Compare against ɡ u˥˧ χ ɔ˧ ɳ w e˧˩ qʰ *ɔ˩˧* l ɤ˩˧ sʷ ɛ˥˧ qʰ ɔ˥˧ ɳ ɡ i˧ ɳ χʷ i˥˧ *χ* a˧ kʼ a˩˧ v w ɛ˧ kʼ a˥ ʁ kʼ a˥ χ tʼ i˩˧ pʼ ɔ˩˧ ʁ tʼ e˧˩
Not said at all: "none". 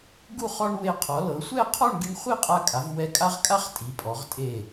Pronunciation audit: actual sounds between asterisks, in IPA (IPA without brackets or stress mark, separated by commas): ɔ˩˧, qʼ